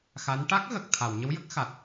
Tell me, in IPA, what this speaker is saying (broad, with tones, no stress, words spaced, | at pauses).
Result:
xa˧˥n ʈa˦˥k̚ɣə˨˩k̚ t̪ʰa˨˩˨wɲə˧˥wjə˦˥k̚ xa˨˩t̚